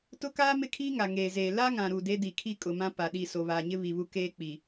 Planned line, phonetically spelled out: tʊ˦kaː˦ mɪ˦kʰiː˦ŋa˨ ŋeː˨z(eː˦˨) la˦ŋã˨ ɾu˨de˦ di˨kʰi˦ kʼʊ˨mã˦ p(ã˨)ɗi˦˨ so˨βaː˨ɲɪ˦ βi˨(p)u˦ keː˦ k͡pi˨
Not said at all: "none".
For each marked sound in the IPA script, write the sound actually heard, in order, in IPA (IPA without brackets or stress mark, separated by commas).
eː˨, a˨, β